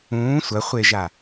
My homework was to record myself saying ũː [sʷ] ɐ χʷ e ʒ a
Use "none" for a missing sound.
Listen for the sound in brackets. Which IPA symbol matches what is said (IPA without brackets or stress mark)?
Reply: sʷ